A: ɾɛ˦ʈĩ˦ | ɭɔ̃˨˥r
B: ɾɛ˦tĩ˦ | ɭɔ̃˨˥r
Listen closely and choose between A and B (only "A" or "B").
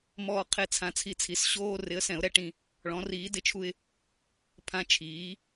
A